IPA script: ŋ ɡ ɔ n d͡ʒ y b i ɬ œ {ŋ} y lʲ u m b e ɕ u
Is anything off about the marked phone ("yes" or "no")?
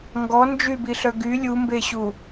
yes